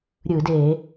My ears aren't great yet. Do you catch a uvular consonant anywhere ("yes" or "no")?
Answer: no